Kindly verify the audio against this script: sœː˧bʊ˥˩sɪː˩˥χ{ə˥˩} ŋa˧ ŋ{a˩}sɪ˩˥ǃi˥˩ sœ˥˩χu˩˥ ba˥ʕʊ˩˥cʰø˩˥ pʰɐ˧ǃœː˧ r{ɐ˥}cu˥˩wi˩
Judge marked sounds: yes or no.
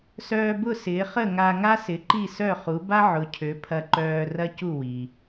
yes, no, yes

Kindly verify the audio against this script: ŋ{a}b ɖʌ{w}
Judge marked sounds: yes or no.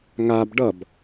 yes, no

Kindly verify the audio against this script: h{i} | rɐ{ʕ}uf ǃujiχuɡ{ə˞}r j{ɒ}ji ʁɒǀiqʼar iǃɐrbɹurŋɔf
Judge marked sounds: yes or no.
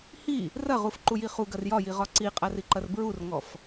yes, no, no, yes

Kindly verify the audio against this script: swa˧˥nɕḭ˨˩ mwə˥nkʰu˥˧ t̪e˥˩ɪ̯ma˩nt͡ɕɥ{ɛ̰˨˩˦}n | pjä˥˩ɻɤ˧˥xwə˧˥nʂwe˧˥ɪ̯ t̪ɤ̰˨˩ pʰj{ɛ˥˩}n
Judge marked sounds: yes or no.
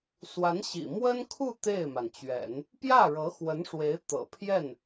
yes, yes

